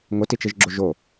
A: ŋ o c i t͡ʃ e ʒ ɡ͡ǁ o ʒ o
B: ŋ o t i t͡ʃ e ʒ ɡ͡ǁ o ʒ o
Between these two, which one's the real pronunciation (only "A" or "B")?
B